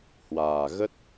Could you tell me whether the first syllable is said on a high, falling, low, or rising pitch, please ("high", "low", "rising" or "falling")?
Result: low